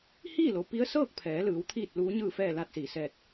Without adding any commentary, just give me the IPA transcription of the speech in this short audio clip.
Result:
hiː˥˨lo˩˧pi˧˥ə̯ sɤː˥˨k̚pʰɛː˩˧lɯː˩˧w t̪ʰiː˥˨t̚luː˧˥ɲɯː˥˨fɛː˥˨ laː˥˨t̚siː˩ sɛː˥˨t̚

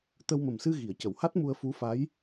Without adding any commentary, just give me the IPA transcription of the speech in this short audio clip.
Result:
t̪ə˧wmə˨˩msɨ˧ ɣi˨˩˨ə̯cə˨˩˨wha˦˥t̚mu˧ə̯ fu˧˥fa˧˥j

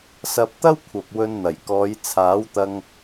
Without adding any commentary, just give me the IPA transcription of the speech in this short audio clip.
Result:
sɐ˧p̚t̪ɐ˥wkʷʰɐ˨p̚ wɵ˧nn̪ɐ˨˩jkɔː˨˧j t͡sʰaː˨˥wt̪ɐ˧ŋ

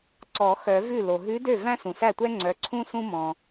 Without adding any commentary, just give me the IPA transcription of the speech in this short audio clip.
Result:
ǀɔ˨˩˦ xœ˨˩˦vʉ˥˩ lo˩ɦʉ˧˥dø˥˩ væ̃˥sũ˩sæ˥˩tʷɛ˥ ŋ͡ǀœ˩˥ǀʰũ˥ sũ˥mɔ̃˩

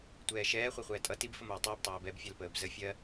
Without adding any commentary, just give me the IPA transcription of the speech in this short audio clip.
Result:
tʷɛːʃɛː χʷɛχʷɛːtʼʌ tib fəmʌːtˤʌːb tˤɛːbɛb fʲælpəːbzə fʲɜ

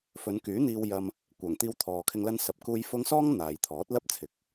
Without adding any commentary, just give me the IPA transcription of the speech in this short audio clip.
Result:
fɵ˨˧nkyː˨˥n̪iː˧w jɐ˧m | kʷœː˨˩ŋt̪iː˧wt̪ʰɔː˨kʰɪ˧ŋ lɐ˥nsɐ˧p̚kuː˥j fʊ˥ŋ sɔː˥ŋ n̪aː˨jt̪ʰɔː˨˥t̚lɐ˥p̚t͡sʰɪ˨˥k̚

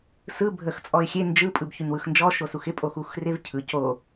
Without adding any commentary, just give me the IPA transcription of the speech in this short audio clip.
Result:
sɯ bʱəx t͡sʼɔɪ̯xʲe nd͡ʒɯ pʼɯbçynwɯxnd͡ʒɔ ʃosuxɪ pʼoxuxrɪv cʰɯ co

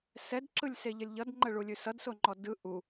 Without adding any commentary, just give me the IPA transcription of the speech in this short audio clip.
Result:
sɛdǁɯlʲseʎəlʲ ʎʌdŋ͡ǃəɭulʲʉ sʌdsoŋ͡ǃɔ dɯ ʔu

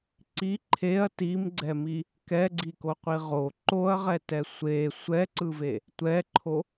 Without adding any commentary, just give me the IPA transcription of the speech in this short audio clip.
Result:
ǀi ǃʰeɐ̯ timɡ͡ǀɛmi | kɛɡ͡ǀikoqʷi ʁo ǃoɐ̯ʁɛtɛ sʷe sʷɛǀɯve | tʷɛǃʰo

